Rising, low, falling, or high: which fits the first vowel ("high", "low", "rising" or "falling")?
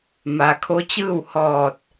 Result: low